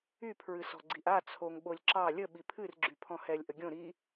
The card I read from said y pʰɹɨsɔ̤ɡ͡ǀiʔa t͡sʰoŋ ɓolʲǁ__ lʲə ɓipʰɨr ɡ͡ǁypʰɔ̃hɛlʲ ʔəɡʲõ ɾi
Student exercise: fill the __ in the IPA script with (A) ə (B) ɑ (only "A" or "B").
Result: B